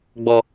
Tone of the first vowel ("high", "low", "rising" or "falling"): high